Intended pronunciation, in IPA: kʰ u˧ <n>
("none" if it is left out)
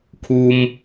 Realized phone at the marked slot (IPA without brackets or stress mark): m